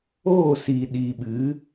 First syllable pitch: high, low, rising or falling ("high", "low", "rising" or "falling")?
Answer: falling